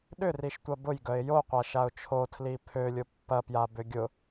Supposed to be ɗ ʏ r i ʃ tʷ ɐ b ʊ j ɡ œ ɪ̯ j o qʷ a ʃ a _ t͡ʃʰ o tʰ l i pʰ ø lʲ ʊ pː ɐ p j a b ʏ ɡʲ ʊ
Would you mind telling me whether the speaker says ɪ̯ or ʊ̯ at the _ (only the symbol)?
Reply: ʊ̯